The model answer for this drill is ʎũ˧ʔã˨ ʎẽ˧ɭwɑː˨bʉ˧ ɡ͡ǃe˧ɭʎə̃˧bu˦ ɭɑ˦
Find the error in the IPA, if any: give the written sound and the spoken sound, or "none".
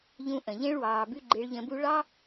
ã˨ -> ə̃˨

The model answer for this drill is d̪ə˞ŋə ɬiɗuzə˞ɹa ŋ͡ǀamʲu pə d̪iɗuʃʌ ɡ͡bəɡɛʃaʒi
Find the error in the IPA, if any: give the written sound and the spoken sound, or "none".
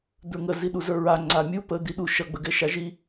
ɬ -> z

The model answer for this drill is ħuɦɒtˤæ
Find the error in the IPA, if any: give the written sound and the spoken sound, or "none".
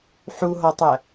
none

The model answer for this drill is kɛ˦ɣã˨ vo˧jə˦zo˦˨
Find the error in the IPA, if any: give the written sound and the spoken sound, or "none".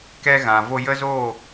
none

